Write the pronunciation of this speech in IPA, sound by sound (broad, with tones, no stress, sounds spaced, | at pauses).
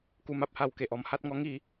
k u˧ m a˨ p̚ h a˧ w k e˨ ʔ ɔ˧ m h a˦ t̚ ŋ ɔ˦ ŋ i˥˧